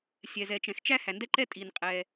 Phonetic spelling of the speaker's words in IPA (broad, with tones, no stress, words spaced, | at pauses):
sʲɛ˩zɛ˩t͡ʃɛ̃˩xt͡ʃæ˥ hæ˩ndɛ˥ǃɛ˥tʼi˩n qʼɛ˩